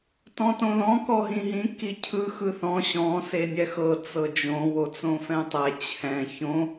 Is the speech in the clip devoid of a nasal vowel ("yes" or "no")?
no